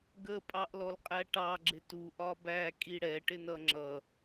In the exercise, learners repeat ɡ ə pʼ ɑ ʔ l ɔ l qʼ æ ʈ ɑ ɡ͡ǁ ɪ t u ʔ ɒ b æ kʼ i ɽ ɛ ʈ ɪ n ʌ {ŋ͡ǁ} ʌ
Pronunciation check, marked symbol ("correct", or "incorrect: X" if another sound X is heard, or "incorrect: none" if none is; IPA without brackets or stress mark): correct